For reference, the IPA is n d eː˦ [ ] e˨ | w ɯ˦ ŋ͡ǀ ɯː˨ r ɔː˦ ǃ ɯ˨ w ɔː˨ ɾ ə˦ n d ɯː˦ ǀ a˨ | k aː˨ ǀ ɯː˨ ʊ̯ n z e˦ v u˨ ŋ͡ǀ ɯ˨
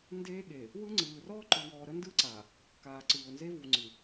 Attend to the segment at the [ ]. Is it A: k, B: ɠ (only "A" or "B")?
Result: B